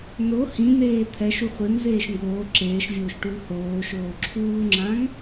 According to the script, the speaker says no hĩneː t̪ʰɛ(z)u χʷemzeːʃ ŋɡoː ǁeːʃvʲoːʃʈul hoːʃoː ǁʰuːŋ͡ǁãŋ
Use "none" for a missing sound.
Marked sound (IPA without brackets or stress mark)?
ʃ